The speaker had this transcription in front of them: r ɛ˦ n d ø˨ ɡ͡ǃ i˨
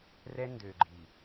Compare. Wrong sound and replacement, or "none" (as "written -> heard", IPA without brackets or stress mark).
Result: none